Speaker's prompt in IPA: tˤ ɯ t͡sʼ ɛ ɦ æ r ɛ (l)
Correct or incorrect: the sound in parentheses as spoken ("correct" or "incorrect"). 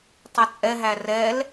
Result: correct